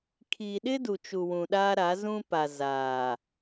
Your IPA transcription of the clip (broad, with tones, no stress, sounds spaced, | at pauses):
kʰ iː˨ ɗ ɪ˦ d u˨ t͡ʃ u˨ w ũ˨ ɗ aː˦ ɾ a˨˦ z ũ˦ p a˨ z aː˨